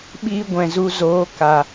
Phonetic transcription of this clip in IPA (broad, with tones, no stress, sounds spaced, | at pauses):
ɓ iː˧ ɡʷ ɛ̃˨ z u˧ z oː˨˦ k a˨